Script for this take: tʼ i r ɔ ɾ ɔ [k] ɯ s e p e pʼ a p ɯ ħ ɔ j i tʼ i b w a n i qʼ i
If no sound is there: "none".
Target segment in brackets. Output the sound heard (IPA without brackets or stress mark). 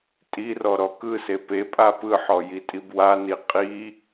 k